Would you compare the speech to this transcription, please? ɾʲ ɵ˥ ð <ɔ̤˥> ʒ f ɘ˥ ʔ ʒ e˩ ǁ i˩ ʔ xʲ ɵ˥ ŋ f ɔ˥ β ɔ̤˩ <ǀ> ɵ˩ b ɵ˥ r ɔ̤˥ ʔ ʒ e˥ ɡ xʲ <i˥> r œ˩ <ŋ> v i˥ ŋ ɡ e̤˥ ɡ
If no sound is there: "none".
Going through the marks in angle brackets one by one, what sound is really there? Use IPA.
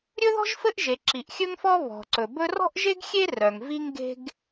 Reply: ɔ̤˥, ǀ, e˥, ŋ

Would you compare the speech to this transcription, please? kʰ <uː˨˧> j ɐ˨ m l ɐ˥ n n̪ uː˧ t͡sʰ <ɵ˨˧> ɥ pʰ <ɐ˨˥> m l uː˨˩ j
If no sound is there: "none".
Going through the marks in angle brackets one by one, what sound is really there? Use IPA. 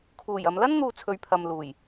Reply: uː˨˩, ɵ˨˧, ɐ˨

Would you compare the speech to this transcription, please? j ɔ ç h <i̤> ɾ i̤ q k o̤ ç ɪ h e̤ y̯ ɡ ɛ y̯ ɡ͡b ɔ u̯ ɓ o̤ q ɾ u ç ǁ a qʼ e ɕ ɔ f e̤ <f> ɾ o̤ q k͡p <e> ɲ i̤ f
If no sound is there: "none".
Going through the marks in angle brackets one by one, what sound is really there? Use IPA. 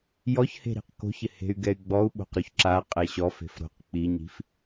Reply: e̤, f, i

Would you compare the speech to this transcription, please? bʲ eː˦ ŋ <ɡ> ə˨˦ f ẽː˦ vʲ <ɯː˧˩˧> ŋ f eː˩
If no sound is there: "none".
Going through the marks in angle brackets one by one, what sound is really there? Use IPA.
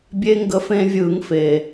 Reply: ɡ, ɯː˧˩˧

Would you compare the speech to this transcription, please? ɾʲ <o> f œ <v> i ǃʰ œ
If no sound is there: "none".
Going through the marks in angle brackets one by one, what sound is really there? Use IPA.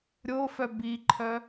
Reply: o, b

